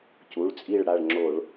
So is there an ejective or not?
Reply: yes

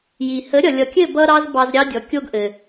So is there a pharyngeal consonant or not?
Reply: no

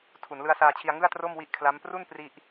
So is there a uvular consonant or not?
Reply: no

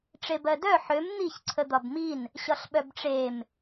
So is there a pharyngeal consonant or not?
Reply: yes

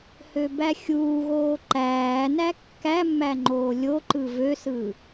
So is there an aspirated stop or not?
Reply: no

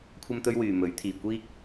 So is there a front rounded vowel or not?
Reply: yes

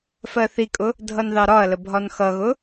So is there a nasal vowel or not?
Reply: no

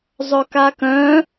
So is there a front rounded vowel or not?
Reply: yes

